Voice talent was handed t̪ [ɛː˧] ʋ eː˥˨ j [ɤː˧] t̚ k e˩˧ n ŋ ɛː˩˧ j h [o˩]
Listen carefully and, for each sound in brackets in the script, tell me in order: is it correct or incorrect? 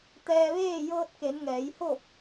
correct, correct, incorrect

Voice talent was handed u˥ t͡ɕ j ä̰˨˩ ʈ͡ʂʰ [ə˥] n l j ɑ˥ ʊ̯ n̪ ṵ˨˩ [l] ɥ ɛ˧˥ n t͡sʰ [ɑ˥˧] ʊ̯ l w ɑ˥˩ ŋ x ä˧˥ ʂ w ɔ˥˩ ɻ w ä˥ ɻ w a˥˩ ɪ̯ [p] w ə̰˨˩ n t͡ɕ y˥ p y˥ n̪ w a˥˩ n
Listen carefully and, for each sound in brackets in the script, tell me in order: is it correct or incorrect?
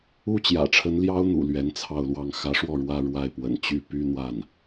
incorrect, correct, correct, correct

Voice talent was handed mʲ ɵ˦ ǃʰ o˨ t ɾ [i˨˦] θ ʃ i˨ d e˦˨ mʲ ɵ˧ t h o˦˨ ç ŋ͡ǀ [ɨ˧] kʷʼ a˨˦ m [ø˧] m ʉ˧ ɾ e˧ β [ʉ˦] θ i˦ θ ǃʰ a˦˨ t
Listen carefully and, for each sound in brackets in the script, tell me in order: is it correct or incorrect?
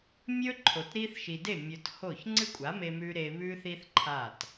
incorrect, incorrect, incorrect, correct

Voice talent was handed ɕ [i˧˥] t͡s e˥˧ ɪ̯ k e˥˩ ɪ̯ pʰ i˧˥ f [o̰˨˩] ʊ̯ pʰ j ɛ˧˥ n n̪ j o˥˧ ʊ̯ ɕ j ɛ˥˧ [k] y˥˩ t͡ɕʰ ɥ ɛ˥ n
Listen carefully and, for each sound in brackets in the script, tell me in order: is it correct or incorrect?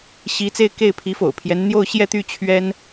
correct, correct, incorrect

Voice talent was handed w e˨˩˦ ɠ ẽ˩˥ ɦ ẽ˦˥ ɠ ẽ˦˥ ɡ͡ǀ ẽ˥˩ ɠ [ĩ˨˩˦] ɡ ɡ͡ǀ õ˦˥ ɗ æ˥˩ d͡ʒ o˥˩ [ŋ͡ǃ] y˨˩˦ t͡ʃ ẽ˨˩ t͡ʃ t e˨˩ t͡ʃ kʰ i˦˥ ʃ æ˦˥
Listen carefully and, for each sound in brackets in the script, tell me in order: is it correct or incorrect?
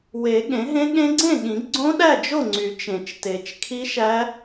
correct, incorrect

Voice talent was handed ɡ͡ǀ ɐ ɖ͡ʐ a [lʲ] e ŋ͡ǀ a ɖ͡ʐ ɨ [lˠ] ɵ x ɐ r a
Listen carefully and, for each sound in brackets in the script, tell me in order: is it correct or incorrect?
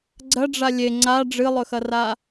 correct, correct

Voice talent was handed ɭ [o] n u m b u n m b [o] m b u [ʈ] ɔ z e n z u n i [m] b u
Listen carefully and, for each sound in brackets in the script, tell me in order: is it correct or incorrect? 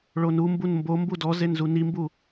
correct, correct, incorrect, correct

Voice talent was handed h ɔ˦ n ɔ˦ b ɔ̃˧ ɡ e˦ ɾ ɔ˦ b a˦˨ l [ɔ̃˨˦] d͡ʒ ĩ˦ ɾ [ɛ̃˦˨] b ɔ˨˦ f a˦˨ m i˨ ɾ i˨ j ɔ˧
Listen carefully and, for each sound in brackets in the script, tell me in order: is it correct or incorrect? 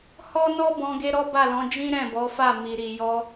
correct, correct

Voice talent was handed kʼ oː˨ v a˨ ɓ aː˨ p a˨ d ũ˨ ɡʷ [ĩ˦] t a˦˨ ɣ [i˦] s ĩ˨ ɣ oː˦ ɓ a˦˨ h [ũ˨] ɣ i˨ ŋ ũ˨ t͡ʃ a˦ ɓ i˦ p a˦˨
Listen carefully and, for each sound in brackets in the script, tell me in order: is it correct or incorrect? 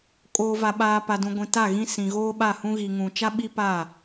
incorrect, incorrect, incorrect

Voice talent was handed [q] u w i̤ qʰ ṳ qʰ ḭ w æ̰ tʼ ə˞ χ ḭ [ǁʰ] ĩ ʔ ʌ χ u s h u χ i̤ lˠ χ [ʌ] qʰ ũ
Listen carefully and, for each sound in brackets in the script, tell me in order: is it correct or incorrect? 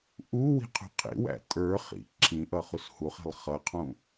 incorrect, correct, correct

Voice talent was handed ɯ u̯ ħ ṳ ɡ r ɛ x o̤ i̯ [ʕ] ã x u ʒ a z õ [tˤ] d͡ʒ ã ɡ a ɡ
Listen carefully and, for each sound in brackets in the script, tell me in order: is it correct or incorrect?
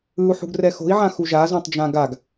correct, correct

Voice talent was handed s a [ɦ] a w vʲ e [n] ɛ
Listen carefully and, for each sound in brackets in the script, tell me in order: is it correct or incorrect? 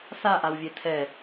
incorrect, incorrect

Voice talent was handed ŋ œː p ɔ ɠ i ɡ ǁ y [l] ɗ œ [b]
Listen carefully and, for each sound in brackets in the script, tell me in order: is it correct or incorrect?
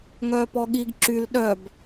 correct, correct

